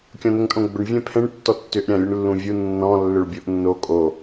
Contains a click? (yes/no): no